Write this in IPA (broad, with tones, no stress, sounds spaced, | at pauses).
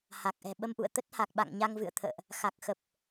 h a˨˩ k̚ ʔ ɛ̤˨˩ ɓ ə˧ m ʔ ṵ˧˨ ə̯ t̪ ə˦˥ t̚ h a˨˩ k̚ ɓ a̰˧˨ ŋ ɲ a˧ ŋ v ɨ̰˧˨ ə̯ t̪ʰ ə̰ː˧˨ ʔ | x a˨˩ k̚ x ə˨˩ p̚